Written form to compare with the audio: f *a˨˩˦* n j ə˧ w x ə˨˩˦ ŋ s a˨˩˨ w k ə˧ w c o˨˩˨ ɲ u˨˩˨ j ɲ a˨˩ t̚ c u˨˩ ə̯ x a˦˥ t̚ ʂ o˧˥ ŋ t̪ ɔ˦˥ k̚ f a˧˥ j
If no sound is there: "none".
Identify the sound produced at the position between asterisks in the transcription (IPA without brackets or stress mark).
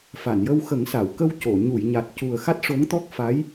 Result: a˨˩˨